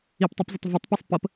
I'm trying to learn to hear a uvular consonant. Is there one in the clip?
no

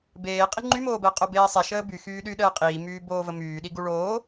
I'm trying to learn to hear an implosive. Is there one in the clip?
yes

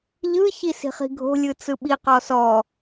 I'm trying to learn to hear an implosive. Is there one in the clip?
yes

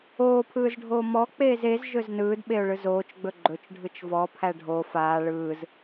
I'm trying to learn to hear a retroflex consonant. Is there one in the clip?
yes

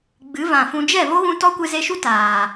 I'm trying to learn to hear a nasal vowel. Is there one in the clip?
yes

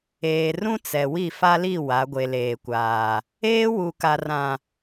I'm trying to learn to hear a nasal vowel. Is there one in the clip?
yes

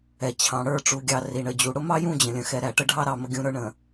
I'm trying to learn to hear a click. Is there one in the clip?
no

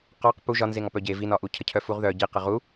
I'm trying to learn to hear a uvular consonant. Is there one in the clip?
yes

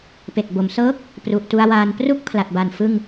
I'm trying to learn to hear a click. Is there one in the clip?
no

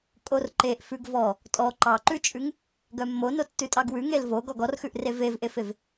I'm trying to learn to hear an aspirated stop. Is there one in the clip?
no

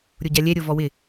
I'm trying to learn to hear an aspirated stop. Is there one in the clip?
no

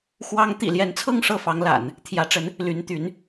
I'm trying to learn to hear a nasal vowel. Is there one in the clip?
no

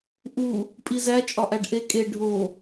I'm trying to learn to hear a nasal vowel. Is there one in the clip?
no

